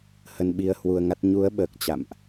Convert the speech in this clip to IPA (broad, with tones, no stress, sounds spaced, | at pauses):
h ə˧ n ɓ i˧ ə̯ h w u˧ ə̯ ŋ a˦˥ t̚ ɲ u˨˦ ə̯ ɓ əː˨˩ k̚ t͡ɕ a̰˧˨ m ʔ